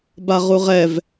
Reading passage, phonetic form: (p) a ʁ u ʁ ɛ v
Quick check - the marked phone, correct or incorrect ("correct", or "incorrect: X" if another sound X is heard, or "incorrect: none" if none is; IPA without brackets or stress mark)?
incorrect: b